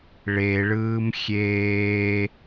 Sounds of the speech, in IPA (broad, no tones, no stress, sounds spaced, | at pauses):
ɭ e ɭ ɯː m xʲ eː